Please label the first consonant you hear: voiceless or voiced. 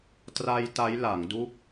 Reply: voiceless